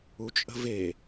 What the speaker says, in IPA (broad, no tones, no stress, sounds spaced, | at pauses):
u t͡ʃʼ ə̤ v e